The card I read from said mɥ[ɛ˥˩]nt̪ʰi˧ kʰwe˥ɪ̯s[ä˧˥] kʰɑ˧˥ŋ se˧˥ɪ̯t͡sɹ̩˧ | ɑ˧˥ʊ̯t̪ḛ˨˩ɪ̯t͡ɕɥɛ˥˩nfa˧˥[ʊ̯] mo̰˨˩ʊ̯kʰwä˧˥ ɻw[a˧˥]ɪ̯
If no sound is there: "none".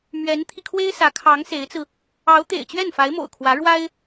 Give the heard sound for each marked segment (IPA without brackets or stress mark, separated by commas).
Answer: ɛ˧˥, ä˧˥, ɪ̯, a˥